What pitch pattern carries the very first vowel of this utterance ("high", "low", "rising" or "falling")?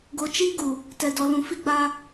low